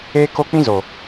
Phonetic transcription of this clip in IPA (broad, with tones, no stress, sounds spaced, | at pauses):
eː˦ k o˦ k͡p ĩ˦ z o˨